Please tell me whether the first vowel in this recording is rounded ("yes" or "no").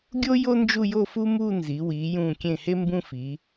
yes